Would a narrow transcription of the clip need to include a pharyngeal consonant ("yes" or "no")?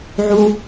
yes